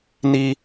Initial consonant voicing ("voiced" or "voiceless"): voiced